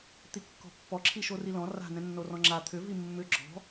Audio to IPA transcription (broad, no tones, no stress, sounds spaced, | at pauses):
t̪ i kː ɔ̤ pː ɔ ǁʰ i ʃ o r i l ɔ̃ r a̤ n ɛ̃ nː o r ɔ̃ ŋ͡ǁ a t̪ʰ ʏ v i mː ʏ ɡ͡ǁ ɔ̤